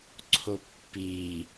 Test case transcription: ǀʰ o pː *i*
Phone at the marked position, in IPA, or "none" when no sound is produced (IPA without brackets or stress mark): i